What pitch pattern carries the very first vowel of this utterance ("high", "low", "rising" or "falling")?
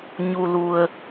low